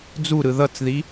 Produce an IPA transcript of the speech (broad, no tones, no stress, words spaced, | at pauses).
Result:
d͡zuɾɯ ðʌt͡sði